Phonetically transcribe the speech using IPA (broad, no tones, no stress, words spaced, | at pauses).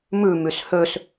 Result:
mʉmys høs